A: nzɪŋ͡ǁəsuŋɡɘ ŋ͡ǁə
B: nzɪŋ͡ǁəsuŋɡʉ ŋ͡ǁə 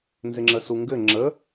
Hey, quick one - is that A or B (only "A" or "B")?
A